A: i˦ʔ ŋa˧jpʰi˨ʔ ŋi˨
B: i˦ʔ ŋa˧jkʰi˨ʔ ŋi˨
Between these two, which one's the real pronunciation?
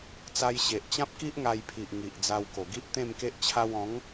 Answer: A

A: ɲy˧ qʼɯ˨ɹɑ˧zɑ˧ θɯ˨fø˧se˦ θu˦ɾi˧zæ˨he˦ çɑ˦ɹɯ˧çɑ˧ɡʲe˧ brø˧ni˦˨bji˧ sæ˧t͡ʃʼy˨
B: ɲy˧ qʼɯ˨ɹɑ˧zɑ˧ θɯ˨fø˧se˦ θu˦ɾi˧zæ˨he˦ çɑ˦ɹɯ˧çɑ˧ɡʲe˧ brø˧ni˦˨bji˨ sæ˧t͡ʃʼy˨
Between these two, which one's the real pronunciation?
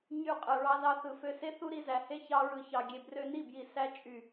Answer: B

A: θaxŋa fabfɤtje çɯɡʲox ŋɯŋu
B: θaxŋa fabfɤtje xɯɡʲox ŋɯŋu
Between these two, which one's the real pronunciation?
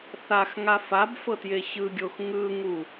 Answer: A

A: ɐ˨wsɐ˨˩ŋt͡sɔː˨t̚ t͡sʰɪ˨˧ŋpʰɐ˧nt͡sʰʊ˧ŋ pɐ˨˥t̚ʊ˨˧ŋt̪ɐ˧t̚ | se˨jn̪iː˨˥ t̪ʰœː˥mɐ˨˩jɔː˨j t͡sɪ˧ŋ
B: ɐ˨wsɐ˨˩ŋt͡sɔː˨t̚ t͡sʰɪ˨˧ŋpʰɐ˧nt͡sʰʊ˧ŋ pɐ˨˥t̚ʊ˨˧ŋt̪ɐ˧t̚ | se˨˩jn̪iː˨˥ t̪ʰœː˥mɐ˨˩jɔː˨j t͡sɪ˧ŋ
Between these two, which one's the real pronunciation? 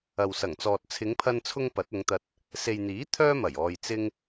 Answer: A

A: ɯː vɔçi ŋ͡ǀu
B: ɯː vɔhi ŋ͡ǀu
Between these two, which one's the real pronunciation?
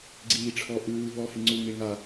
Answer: B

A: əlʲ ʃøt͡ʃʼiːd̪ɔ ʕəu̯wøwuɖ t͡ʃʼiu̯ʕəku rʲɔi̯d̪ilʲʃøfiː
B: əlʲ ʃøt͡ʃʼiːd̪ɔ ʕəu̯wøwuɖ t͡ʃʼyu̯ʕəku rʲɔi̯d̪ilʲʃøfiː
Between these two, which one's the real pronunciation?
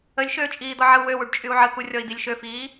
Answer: B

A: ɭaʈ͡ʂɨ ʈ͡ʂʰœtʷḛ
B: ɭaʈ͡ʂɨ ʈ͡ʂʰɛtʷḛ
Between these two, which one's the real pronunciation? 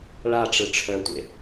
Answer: A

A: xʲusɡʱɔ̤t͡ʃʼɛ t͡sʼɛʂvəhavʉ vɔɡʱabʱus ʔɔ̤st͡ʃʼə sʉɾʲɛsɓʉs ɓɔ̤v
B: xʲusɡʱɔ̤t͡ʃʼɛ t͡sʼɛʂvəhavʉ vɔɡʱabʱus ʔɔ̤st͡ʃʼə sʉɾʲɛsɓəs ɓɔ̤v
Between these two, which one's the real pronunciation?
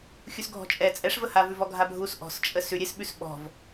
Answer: A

